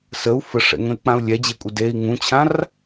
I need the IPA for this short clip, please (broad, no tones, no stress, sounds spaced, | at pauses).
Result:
s ə u̯ f ə ʂ ɛ̰ ŋ ə̃ y̯ k͡p ã u̯ lʲ ɛ d͡ʑ e kʷʼ ɪ d e i̯ ŋ ũ t͡ɕʰ ã r